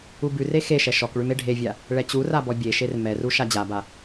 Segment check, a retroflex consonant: present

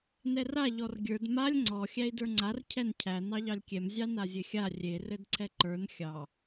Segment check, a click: present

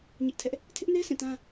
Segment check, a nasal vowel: present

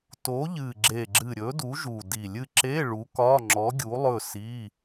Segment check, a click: present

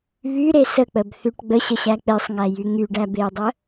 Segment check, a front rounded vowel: present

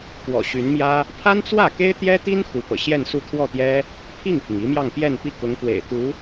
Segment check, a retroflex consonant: absent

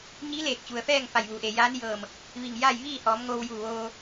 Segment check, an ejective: absent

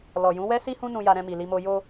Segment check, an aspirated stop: absent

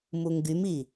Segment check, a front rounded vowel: present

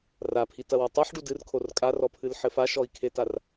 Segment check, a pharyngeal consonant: present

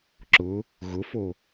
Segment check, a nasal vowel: absent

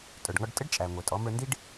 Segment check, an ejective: present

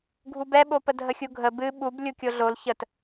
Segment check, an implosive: present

